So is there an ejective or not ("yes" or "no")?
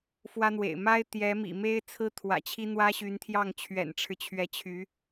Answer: no